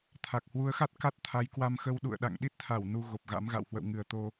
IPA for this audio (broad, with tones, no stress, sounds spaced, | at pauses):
t̪ʰ a˨˩ k̚ h w u˨˦ ə̯ x a˦˥ t̚ k a˦˥ t̚ t̪ʰ a˨˦ j k w a˧ m x ə˧ w ɗ ṵ˧˨ ə̯ ɗ a̰˧˨ ŋ ɗ i˦˥ t̚ t̪ʰ a˧˩ w n u˧ ɣ o˨˩ p̚ ɣ a̰˧˥ m ɣ a̰˧˨ w h w ə̰˧˨ w ŋ ɨ˨˩ ə̯ t̪ o˧